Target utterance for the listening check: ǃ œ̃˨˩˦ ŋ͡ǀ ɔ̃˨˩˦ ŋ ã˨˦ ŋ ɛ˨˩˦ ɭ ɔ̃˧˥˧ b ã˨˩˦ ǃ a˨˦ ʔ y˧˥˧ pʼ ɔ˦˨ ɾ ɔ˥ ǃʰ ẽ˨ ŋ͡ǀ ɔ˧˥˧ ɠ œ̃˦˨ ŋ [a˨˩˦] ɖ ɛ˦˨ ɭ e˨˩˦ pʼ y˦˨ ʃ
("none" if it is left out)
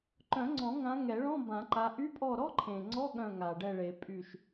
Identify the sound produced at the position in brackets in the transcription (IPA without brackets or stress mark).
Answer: a˨